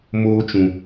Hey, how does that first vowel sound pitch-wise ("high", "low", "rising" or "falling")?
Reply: high